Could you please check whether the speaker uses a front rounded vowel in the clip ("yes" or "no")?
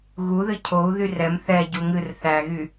yes